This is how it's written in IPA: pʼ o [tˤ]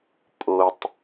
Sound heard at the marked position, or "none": tˤ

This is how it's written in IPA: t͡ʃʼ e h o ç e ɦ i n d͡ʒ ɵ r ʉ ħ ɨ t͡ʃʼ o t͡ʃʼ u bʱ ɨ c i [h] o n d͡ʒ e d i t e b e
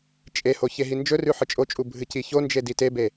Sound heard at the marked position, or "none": ç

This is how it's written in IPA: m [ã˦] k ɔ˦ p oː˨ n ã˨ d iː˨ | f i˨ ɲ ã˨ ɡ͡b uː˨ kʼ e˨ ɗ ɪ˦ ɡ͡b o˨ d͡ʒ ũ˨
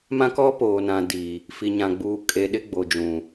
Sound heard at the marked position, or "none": ã˦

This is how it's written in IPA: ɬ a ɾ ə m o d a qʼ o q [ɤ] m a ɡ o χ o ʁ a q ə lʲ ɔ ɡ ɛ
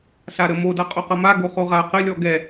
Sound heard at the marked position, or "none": ɤ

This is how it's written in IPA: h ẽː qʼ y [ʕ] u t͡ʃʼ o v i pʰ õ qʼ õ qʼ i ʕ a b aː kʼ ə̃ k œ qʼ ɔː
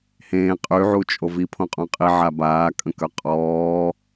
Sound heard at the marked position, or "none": ʕ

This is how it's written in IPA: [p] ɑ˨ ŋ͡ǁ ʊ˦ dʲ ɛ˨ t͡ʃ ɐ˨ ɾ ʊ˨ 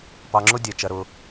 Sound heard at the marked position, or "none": p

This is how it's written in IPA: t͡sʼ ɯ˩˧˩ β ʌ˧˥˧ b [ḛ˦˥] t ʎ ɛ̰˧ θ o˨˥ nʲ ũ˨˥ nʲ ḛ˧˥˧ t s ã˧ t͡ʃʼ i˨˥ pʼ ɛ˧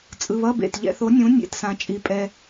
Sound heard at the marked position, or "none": ḛ˩˧˩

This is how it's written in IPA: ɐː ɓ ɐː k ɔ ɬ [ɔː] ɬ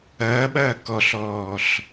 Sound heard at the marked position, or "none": ɔː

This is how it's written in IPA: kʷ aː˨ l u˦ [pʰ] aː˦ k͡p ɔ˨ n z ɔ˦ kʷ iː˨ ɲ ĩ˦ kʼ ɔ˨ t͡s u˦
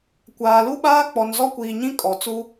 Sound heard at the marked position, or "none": ɓ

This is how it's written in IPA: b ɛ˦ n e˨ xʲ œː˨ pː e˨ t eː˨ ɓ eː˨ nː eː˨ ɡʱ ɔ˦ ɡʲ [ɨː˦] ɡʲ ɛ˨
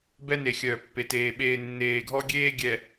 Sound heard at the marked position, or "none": eː˦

